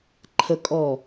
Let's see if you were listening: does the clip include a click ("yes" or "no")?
yes